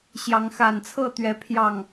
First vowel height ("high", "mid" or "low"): low